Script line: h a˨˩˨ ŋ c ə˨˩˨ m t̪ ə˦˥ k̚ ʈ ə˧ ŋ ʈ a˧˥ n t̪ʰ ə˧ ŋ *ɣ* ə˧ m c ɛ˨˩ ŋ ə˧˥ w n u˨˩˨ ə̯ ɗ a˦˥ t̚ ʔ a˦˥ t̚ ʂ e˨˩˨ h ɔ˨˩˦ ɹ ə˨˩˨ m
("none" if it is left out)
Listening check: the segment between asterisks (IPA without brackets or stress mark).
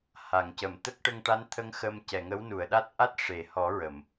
x